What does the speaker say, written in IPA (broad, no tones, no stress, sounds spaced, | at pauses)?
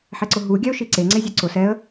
ħ ɛ ǀ ʊ ɦ u ɡʲ a ʊ̯ ʃ i ǀ e ŋ͡ǀ e zʲ ɔ ǀ ʊ s ɛ ə̯